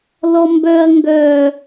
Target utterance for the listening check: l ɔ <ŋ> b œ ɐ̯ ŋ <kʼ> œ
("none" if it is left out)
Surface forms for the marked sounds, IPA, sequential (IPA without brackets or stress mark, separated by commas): m, ɡ